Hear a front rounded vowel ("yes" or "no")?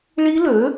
yes